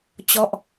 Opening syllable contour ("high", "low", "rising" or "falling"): falling